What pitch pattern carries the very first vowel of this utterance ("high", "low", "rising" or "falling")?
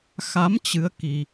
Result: rising